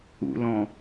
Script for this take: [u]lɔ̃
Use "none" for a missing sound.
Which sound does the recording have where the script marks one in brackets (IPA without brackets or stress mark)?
ṵ